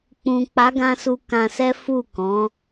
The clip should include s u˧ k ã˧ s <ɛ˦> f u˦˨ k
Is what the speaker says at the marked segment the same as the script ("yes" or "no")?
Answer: yes